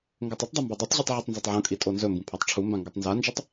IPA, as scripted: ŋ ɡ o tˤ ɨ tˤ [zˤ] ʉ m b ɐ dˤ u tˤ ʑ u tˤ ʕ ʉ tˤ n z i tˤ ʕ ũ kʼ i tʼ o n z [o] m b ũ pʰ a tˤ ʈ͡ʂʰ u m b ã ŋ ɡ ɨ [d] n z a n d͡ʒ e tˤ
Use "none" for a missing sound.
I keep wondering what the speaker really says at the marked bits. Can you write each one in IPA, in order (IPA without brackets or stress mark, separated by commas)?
dˤ, ɵ, tˤ